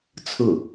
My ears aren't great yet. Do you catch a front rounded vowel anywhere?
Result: no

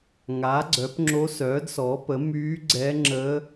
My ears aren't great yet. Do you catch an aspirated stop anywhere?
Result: no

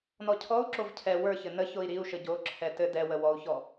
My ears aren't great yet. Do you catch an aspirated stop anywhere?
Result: yes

